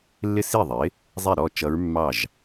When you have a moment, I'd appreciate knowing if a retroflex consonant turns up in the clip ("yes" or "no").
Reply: no